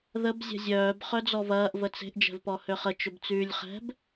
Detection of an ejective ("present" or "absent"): absent